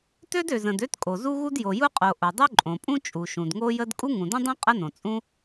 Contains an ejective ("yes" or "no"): yes